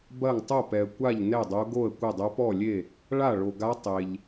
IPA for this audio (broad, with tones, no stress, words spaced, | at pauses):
bɐ˥˩ŋtˤo˥˩pɛ˨ə̯kʷa˥˩ʎ nɛ˥˩dˤo˧˥ ɡo˥˩ə̯kʷɐ˥˩dˤo˧˥ pɔ˥˩lʲe˥˩ | ɭa˥˩ɭo˨ɡa˧˥ tˤe˨ʎ